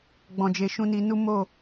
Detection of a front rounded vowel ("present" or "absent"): absent